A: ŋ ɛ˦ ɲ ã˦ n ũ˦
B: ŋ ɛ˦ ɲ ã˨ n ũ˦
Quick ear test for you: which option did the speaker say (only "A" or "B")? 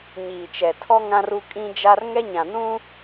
B